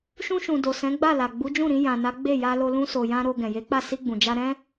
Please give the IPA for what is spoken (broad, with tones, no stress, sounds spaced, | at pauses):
ʃ ũ˧ ʃ ũ˨ d o˨ s ɛ̃˨˦ ɡ͡b a˦˨ l a˨ ɡ͡b u˨˦ d͡ʒ ũ˦˨ ɾ ĩ˧ j ã˨ n a˨˦ ɡ͡b e˦˨ j a˧ l o˧ l ũ˧ s o˨ j ã˧ ɾ o˧ ɡ ɛ̃˨ j e˨˦ k͡p a˦˨ s i˧ ɡ͡b ũ˨ d͡ʒ a˧ ɾ ɛ̃˦